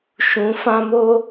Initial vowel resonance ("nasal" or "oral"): nasal